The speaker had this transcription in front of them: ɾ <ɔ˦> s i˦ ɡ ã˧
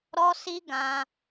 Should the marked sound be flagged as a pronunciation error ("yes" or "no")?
no